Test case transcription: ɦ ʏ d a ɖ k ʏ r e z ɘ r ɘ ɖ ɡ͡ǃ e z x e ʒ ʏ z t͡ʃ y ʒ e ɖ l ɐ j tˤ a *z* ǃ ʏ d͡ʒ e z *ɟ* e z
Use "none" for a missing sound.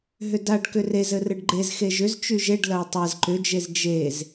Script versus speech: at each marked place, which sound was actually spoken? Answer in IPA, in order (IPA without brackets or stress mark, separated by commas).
z, d͡ʒ